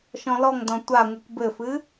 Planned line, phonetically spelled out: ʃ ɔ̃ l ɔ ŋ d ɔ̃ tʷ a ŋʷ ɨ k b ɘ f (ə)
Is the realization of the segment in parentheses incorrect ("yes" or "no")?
yes